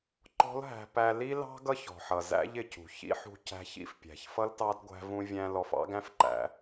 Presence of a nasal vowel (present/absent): present